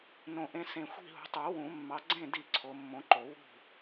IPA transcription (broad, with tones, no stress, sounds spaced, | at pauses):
n õ˨ ʔ ẽ˨˦ s ẽ˨ xʷ i̤˥˨ ɦ ṳ˨˦ tˤ u˨˩˦ w ũ˨˩˦ mː ɑ˨˦ ɡ͡ǀ ẽ˥˨ d i˥˨ ǀʰ o˨˦ mː õ˨˦ ǃ o˨˩˦ w ṳ˥˨